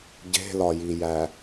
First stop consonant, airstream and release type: plain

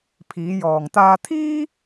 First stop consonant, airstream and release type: aspirated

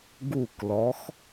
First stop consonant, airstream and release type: plain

